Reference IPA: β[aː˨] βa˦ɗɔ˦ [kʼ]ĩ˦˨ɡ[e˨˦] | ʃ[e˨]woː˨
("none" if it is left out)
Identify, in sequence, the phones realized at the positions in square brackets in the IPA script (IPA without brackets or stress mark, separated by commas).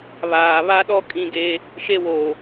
aː˨, kʼ, e˦, e˦